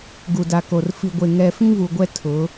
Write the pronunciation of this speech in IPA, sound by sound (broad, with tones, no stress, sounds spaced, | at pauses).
ɡ u˨ d a˨ k o˨ r f i˨ ɡʷ e˨ ŋ ɛ˨ f ĩ˦ v u˨ ɡʷ ɛ˦ tʰ ʊ˨˦